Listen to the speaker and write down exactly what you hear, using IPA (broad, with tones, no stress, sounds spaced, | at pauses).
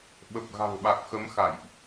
ɓ ə˨˩ p̚ ɣ a̤˨˩ ŋ ɓ a˨˩ k̚ x ə˨˦ m x a̰˧˨ j ʔ